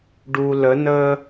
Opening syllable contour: low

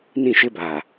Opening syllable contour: falling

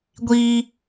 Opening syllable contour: high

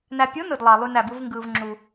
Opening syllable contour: low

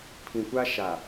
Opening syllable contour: low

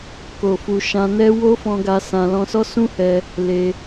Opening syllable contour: low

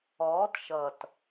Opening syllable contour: rising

